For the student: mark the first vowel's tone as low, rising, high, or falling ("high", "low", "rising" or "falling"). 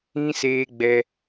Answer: high